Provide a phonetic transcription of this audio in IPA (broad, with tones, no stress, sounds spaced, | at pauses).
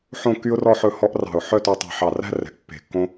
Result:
ħ õ˥˧ kː y˥ ʊ̯ r ɔ˥˧ ħ ɵ˥˧ h ɔ˥ ʔ r ɑ̤˧˩ ʊ̯ ħ œ˥˧ t ø˧ tˤ ɛ̤˧˩ ħ ɑ˧˩ r æ̤˥ r ɛ̤˩˧ ʔ pː e̤˧˩ kː õ˥